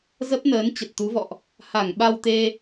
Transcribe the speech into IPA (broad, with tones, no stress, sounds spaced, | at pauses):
z ə˦˥ p̚ n əː˨˦ n t͡ɕ ə˨˩ t̚ t̪ u˨˦ v ɔ̰˧˨ ʔ | h a˧˩ ŋ ɓ a˧ w t̪ e˧